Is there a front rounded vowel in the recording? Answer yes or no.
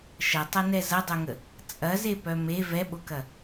yes